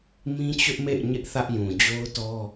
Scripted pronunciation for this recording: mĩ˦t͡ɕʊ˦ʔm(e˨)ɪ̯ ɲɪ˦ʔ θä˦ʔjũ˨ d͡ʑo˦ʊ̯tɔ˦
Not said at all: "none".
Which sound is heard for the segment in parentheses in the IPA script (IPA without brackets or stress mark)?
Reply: ḛ˦˨